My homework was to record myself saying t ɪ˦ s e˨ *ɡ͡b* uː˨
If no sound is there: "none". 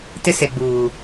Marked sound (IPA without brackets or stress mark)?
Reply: ɡ͡b